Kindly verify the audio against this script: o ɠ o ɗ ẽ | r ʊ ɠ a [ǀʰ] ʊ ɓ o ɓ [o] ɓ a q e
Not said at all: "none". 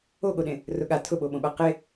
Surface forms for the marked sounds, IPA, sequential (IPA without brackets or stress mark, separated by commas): tʰ, õ